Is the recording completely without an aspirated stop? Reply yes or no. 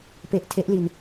no